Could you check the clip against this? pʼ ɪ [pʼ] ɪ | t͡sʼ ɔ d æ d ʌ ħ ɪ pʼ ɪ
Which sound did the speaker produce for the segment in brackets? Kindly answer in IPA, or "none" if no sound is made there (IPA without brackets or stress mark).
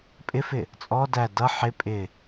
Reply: f